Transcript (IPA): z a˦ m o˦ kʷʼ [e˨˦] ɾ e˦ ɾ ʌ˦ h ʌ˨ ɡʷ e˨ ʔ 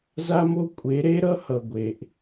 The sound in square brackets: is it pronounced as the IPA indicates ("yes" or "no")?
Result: yes